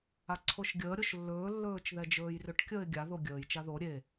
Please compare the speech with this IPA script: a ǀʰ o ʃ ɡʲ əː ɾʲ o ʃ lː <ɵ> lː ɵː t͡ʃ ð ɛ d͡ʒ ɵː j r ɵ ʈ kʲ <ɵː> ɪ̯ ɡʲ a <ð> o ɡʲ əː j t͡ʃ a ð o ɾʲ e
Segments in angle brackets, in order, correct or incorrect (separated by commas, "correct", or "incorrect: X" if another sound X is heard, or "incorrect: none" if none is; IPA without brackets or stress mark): incorrect: ɵː, incorrect: əː, correct